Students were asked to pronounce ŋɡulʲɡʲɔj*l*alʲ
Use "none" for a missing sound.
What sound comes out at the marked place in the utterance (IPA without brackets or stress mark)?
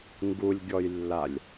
lː